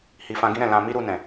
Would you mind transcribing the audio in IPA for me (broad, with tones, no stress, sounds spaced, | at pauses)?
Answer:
h i˨ f ã˧ ɡ ĩ˦ ɾ ɛ̃˦˨ l ã˧ m i˦ ɾ u˧ n ɛ̃˨